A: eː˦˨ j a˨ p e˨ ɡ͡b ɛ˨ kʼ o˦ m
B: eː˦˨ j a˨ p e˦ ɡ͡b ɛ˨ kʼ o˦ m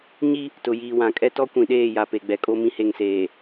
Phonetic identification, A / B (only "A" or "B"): A